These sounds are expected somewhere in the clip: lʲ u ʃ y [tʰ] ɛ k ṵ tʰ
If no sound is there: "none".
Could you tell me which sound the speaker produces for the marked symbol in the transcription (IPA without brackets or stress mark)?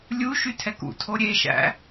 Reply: tʰ